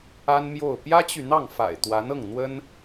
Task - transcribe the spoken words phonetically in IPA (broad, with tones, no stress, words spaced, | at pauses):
a˥nmjo˥˩ʊ̯ pjä˥t͡ɕy˨n̪ɑ˥˩ŋfa̰˨˩ɪ̯ t̪wa˧˥nɤ˥˩ŋn̪wə˥n